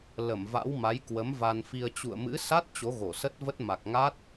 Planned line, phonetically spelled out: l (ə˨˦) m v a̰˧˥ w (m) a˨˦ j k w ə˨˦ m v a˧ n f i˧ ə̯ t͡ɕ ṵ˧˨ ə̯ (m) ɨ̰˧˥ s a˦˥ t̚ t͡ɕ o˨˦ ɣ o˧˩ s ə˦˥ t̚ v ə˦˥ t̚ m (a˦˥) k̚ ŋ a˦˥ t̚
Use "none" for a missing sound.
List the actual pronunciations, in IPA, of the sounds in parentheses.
ə˧˩, m, m, a˨˩

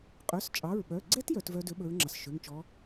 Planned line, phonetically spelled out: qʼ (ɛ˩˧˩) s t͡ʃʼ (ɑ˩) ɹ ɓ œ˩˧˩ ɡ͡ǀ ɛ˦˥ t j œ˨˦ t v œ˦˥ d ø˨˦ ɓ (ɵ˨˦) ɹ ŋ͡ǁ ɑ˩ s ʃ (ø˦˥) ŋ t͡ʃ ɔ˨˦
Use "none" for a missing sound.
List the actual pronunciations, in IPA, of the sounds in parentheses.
œ˩˧˩, ɑ˩˧˩, ɵ˨˦, ø˩˧˩

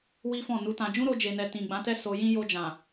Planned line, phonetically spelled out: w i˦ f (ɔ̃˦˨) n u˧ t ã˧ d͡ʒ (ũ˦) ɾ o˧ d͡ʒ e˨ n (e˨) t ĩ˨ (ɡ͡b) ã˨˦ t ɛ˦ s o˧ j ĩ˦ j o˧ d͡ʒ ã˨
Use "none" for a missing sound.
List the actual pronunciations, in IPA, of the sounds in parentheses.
ɔ̃˦˨, ũ˦, ɛ˨, ɡ͡b

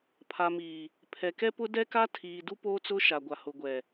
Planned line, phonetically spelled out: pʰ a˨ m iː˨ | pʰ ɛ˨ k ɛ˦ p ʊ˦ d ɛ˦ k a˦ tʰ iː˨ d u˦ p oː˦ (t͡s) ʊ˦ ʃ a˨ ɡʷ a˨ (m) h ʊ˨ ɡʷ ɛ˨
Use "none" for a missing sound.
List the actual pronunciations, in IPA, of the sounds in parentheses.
t͡s, none

